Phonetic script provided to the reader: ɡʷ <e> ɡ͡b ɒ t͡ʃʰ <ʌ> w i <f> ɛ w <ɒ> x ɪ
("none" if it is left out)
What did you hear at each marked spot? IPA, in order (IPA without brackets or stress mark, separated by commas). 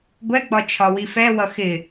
ɛ, ɒ, f, ʌ